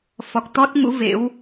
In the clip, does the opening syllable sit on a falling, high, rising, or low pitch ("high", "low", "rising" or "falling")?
low